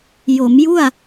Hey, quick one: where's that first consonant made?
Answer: palate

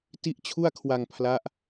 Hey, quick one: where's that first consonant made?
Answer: tongue tip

